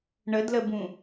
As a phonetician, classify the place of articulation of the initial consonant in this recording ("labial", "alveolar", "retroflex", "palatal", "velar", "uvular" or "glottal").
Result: retroflex